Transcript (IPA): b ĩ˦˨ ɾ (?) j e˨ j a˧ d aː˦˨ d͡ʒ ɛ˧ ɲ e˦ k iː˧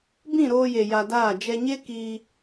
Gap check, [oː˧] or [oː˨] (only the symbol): oː˧